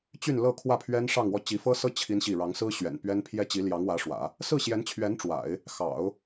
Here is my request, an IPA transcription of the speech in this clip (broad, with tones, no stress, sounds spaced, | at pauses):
t͡ɕ y˥˧ n l ɤ˥˧ kʰ w ä˥˩ pʰ ɥ ɛ˥ n ʂ ɑ˥˧ ŋ w ɔ˥˩ t͡ɕ i˧˥ f ɤ˥ s ɤ˥ t͡ɕʰ i˥ n ɕ i˥˩ ɻ ɑ˧˥ ŋ s ɹ̩˥ ɕ ɥ ɛ̰˨˩ n p ɥ ɛ˥ n pʰ j ɛ˥ t͡ɕ i˧˥ l j ɑ˧˥ ŋ w ä˧˥ ʂ w ä̰˨˩˦ | s ɹ̩˥˩ ɕ j ɛ˧˥ n t͡ɕʰ ɥ ɛ˧˥ n ʈ͡ʂ w a̰˨˩˦ ɪ̯ | x ɑ̰˨˩˦ ʊ̯